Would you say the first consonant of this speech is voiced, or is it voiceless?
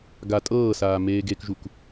voiced